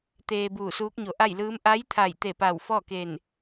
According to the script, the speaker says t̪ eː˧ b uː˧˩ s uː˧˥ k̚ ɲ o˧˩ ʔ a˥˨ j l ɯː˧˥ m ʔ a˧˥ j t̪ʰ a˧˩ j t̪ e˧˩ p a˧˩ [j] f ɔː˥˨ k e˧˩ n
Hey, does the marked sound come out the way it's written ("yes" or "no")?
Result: no